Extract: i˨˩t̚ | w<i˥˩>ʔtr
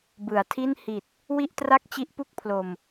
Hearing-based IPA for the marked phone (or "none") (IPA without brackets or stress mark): i˥˩